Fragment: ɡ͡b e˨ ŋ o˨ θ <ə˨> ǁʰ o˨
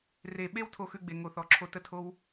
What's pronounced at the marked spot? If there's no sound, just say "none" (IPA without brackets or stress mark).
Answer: ɔ˨